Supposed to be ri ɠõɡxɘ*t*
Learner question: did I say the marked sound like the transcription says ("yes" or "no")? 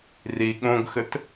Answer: yes